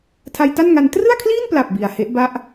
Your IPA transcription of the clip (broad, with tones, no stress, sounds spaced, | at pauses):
tʰ a˧ j t a˥˩ n ŋ a˧ n t r ɯ˥˩ a̯ kʰ l iː˥˩ n p l a˨˩ p̚ b i˨˩ a̯ h e˦˥ ʔ b a˥˩ ʔ